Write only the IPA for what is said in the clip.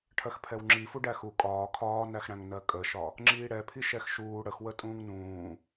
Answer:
ʈʰ ɜ x pʰ ɛ w ŋ͡ǁ i f u ɖ æ x u kʼ ɒː kʰ ɒː n æ x ɽ æ̃ ŋ n ɜ kʼ ə ʃ ɒ | ŋ͡ǁ iː ɽ ɛ pʰ i ʃ ɛ x ʃ uː ɽ ə x w ə tʼ ũː ŋ n ũː

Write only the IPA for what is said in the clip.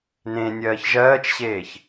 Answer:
n ẽ nʲ ɜː ç ʒ ɜː t͡ʃ ɕ eː ç

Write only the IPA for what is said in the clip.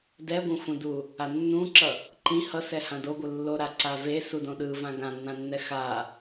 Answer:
d ɛ ɡʷ ɛ̃ xʷ ɛ̃ d u | a nː ũ ǁ ʌ | ǃ ĩ h ʌ s ɛ h ã d o ɡʷ ɯ lː o ɾ a ǀ a v e s u d õ ɗ ɯ v ã ɡ ã nː ã nː ɛ x a

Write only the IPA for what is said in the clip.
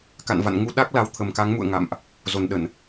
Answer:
k a̰˧˨ n v a̰˧˨ n ŋ u˧ ɗ a˦˥ k̚ l a˨˦ w t̪ʰ ə˨˩ m k a˨˦ ŋ m ṵ˧˨ ə̯ ŋ a̰˧˨ m ʔ | z o˨˩ n ɗ ə˧˩˨ n

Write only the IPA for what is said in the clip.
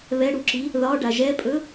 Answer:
β ɛ ɽ u ǁ i | ð ɒ ɖ a ʒ ɛ pʼ ɵ

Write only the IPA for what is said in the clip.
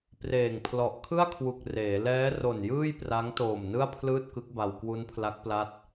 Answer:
p r eː˨˩ ŋ pʰ l ɔ˨˩ ʔ kʰ ɯ˥˩ a̯ kʰ w u˨˩ k̚ r eː˩˦ l ɛː˦˥ r o˨˩ n j ɯː˥˩ j p r a˦˥ ŋ t oː˨˩ m n ɯ˥˩ a̯ pʰ l ɯː˥˩ t̚ k ɯ˦˥ k̚ b a˧ w k w u˦˥ n pʰ l a˦˥ k̚ p l a˦˥ t̚

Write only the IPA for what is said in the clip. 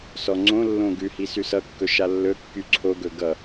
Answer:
s ɔ ŋ͡ǀ õ lː õ ɡ ʉ h i s ʉ s ʌ kː ɵ ʃ a lː ɵ kː y ǀʰ o ɡ ɵ ɡ ʌ

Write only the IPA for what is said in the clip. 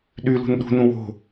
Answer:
ɗ y l ṳ n ɗ ṳ n ũ w o̤

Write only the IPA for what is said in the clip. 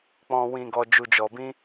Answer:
k͡p ɔ̃˨ w ĩ˨ ɡ ɔ˨ d͡ʒ u˨ d͡ʒ ɔ˨ b ĩ˧

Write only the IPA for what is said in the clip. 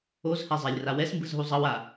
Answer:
o z h ɛ zˤ a lʲ r a w ɛ s m b ɯ z ɦ u zˤ ʌ w a

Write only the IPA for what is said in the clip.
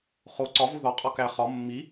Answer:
χ o ǀ ɒ v u ð ɒ qʼ ɒ k æ χ ɒ mː i

